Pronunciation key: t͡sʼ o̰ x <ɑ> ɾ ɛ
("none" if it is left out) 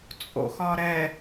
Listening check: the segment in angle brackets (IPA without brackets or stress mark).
ɒ